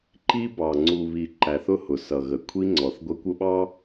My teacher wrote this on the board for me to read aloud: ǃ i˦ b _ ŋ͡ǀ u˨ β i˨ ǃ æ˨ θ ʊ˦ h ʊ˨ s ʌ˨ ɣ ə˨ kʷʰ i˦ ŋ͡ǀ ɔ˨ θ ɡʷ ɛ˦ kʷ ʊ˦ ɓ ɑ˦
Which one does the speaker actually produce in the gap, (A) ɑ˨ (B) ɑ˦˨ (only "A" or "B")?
A